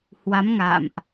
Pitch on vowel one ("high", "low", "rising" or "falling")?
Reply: rising